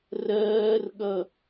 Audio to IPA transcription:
rɜːrɠʌ

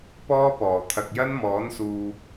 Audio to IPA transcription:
pɔː˥pɔː˨˩ t̪ʰɐ˨k̚jɐ˥nmɔː˨˥nsuː˨

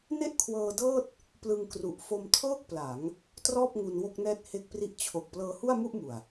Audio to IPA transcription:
ne˥˩ʔkʰwɤː˧dɤː˥˩t̚ | plɯ˧ŋkru˨˩ʔ fo˧mtʰɤː˥˩k̚pla˩˦ŋ | trɔː˥˩p̚ŋu˧n wo˥˩k̚nɛː˥˩t̚ he˦˥k̚pri˦˥ʔ t͡ɕʰo˨˩k̚ plɤː˧hu˥˩a̯mu˥˩ʔmu˨˩a̯

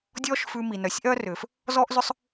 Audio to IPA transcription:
dʲɔː˥ʃfʉ˧ mi˩ nœ˩sʲʔœ˥rʏː˩f | zɔː˥ʔzʏ˥sˤ

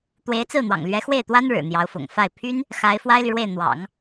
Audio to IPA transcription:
t̪we˧˥ɪ̯t͡sɹ̩˥˩n̪wɑ̰˨˩ŋ lɥɛ˧˥xwe˥˩ɪ̯t̪wa˥n ɻɻ̩˨˩n̪jɑ˧˥ʊ̯fʊ̰˨˩ŋ fa˥˩ɪ̯ pʰy˥n | xa˧˥ɪ̯fwa˥ɪ̯ly˨ɻwe˥˩ɪ̯ n̪wɑ̰˨˩˦ŋ

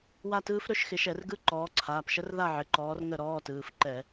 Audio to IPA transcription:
wa˥˨tɯː˦˥f ɾɵ˧˥˧ʃxɪ˨˦ʃɛ˧˩˧rɡɯ˧˥˧ ǃɔː˨˦ǀʰaː˩˧˩pʃə˦˥r ða˥˨ʕɪ˩˧˩ǃɔː˨˦r ŋə˥˨ɾɔː˧˥˧tɯː˩˧˩f ǃɛ˧˩˧

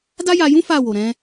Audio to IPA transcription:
da˦ja˧jũ˦ fa˦˨wo˨ɾɛ̃˧

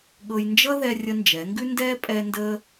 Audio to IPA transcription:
ɠɤ˧j nd͡ʒʌ˥ ðɛ˧ rʲə˧nd͡ʒɛ˩˧ŋɡʉ˥ndɛː˥ pʼɛ˧ ndə˧

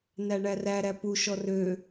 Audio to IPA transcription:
næɳæræ ɾæpu ʃɔrø

